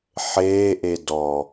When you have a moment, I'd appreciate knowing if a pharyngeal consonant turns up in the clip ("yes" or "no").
yes